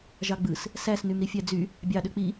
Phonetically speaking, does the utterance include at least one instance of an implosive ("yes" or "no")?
yes